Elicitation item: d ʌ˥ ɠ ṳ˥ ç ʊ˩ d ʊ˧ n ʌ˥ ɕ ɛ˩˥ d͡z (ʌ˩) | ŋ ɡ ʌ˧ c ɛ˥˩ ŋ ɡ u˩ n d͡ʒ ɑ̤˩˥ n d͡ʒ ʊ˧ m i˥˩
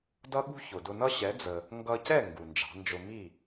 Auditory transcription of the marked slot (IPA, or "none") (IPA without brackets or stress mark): ə˩